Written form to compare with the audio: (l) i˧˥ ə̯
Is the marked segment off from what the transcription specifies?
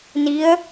yes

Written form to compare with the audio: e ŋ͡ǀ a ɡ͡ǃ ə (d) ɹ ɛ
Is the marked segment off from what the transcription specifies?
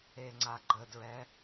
no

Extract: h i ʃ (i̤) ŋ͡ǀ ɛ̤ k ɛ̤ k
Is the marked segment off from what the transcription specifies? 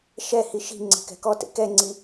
no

